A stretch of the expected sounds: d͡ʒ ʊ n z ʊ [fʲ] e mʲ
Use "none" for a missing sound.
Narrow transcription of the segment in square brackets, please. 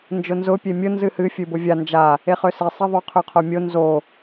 pʲ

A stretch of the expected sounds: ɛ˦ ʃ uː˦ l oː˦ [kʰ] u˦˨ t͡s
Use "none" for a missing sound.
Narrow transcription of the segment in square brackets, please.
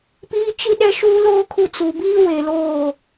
kʰ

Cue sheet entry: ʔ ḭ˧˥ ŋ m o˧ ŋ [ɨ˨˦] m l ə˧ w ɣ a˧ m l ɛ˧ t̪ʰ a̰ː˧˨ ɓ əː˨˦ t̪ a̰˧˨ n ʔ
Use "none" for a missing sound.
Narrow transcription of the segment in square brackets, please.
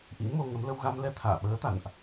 ə˨˦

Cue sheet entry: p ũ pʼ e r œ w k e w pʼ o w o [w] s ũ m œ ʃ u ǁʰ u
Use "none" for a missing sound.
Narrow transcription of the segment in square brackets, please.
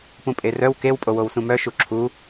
w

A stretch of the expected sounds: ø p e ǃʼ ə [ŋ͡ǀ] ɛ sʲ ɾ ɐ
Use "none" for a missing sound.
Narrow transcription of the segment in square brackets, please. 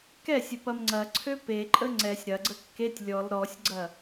ŋ͡ǀ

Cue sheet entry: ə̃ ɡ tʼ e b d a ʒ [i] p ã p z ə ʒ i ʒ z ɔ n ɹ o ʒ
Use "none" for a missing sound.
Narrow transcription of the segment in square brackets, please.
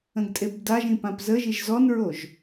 ĩ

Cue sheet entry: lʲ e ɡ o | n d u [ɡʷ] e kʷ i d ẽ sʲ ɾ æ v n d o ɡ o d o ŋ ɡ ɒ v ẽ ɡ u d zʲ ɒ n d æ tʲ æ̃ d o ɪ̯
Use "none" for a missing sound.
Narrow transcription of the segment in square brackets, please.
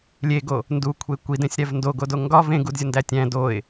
kʷʰ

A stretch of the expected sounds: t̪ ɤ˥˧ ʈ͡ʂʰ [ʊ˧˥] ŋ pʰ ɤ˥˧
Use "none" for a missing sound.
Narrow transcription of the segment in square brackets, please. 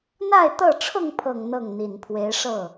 ʊ˥˧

